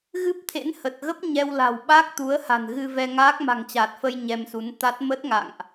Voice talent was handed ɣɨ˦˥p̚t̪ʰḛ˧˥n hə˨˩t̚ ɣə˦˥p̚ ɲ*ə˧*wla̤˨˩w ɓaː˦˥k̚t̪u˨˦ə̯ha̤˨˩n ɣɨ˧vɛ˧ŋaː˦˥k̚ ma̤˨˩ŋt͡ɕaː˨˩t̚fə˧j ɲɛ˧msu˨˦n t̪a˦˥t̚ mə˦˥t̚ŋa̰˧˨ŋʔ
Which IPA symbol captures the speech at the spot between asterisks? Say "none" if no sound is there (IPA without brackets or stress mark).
ɛ˧